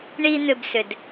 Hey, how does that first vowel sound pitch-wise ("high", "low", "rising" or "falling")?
high